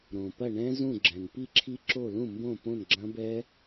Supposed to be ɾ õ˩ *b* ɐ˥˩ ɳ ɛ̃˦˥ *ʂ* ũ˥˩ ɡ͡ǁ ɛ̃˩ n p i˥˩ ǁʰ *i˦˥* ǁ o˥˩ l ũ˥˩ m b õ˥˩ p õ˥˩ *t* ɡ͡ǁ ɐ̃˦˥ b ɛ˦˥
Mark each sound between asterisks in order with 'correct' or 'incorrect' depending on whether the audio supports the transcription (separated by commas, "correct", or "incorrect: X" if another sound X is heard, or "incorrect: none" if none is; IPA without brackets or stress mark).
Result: incorrect: p, incorrect: z, correct, incorrect: n